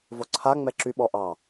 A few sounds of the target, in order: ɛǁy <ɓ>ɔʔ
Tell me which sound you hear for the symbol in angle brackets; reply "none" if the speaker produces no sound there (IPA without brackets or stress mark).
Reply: ɓ